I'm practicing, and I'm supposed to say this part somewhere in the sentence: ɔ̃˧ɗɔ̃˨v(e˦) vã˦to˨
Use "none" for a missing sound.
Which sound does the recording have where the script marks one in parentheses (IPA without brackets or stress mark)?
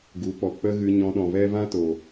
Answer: ɛ˦